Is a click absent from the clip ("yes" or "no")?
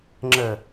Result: no